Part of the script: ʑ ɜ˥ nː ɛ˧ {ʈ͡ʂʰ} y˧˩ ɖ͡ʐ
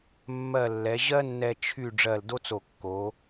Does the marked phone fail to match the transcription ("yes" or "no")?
yes